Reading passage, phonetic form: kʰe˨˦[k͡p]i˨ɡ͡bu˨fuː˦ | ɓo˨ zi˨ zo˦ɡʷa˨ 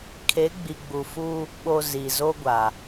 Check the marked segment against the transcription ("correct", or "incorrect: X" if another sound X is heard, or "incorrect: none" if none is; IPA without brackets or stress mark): incorrect: ɡ͡b